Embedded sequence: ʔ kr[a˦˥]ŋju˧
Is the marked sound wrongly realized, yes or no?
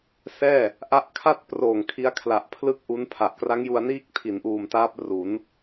no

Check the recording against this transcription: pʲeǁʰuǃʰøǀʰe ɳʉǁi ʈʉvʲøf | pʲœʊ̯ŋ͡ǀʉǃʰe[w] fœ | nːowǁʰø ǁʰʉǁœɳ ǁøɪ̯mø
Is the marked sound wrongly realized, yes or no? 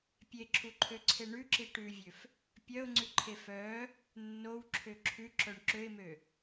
yes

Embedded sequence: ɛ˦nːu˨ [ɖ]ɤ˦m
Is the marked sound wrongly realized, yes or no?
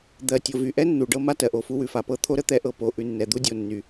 no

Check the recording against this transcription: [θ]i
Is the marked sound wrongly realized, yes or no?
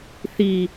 no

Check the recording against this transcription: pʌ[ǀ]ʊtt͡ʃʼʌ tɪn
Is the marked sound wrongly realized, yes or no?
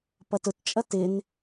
yes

